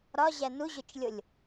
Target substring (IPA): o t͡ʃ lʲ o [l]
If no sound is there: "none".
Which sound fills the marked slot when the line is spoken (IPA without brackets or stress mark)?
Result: lʲ